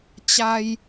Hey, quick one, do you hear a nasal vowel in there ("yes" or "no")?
no